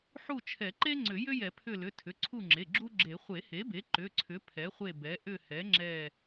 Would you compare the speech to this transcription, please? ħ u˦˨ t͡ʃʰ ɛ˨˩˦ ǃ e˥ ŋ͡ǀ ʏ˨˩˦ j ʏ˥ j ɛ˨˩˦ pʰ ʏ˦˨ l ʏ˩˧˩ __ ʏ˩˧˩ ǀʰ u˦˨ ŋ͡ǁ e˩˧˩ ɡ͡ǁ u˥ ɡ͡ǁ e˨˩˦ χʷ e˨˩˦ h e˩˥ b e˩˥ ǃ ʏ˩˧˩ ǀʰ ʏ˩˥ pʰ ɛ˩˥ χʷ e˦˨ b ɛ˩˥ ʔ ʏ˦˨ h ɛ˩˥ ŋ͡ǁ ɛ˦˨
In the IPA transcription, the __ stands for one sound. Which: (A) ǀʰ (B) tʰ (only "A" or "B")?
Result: B